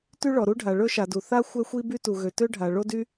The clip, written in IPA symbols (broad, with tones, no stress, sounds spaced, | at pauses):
t y˥ ɭ ɔ˩ ɾ u˥ ɖʱ a˩ ɭ ɵ˥ ʃ a˩ d u˩ θ a˥ xʷ ɛ˥ xʷ i˥ b y˥ t u˩ ɣ ø˩ t ø˥ ɖʱ a˩ ɭ o˥ d y˥